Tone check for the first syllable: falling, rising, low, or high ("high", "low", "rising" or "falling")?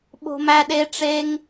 high